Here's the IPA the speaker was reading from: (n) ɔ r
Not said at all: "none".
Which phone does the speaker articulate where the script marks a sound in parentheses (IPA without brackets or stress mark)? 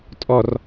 tʼ